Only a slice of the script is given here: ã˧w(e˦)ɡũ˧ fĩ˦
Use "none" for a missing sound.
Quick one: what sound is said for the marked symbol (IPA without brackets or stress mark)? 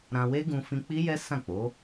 e˦